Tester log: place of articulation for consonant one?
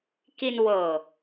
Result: velar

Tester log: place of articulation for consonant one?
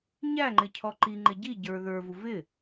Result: palatal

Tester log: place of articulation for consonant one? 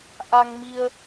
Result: glottal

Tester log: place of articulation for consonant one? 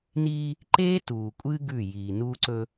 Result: alveolar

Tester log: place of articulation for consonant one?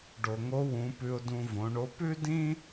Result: retroflex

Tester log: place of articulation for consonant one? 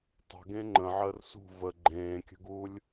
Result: alveolar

